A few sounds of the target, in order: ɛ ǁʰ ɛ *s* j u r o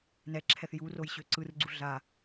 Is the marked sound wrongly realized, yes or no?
yes